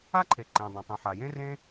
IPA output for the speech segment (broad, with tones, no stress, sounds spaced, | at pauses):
a˥ ǃʰ e˩ ǃ ẽ˩ dˤ ɐ̃˩ tˤ ũ˩ ħ a˩ j ẽ˥ r ẽ˥